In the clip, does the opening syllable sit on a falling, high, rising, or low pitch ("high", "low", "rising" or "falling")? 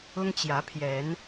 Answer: high